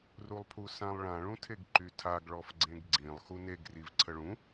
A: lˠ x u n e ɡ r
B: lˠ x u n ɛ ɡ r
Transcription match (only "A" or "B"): A